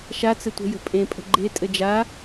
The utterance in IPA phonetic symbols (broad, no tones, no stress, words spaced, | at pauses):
ʃat͡sɘ tʷə̤jə̤ pʼẽpʼə̤ ɡ͡ǃe tʼɘd͡ʒa